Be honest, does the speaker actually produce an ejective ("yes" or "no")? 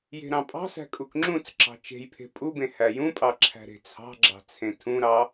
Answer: yes